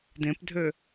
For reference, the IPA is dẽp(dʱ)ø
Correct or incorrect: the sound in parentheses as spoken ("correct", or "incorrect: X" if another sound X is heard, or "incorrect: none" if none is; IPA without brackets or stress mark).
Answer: correct